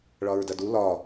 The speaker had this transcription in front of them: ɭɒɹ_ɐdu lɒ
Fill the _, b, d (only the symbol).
d